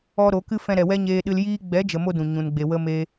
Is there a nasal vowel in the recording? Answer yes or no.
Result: yes